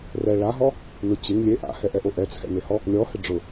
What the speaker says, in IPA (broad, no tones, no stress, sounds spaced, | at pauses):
r ɛ ɭ a ɦ ɔ | n ʊ t͡ɕ e ŋ lʲ e ʔ a̰ h ɛ ʔ ɛ ʔ o ʔ ɛ t͡sʰ ɛ̰ n e h ɔ | lʲ ɔ h ɪ ɖ͡ʐ ʊ